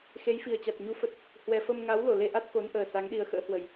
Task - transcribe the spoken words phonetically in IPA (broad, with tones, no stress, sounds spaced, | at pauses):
x e˨˦ j f i˨˩ ə̯ t͡ɕ a˨˩ t̚ ɲ u˨˦ f ə˨˩ t̚ | h w ɛ˨˩ f ə˧ m ŋ a˨˦ w l o˧˩ l e˧ ʔ a˦˥ t̚ k o˨˦ n ʔ əː˨˩ s a˨˦ ŋ ɗ i˨˦ ə̯ x ə̰ː˧˥ h w ə˨˩ j